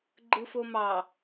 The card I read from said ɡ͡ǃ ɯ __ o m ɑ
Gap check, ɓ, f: f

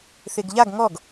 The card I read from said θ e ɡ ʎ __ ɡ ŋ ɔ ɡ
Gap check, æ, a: a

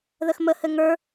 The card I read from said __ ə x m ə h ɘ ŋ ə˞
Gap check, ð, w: ð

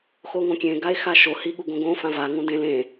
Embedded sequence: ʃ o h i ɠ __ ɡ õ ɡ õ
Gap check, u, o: u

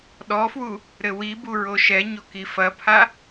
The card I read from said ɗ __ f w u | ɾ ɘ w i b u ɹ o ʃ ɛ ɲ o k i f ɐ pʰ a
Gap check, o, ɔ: ɔ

